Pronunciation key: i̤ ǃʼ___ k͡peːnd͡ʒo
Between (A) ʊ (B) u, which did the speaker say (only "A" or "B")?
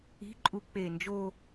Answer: B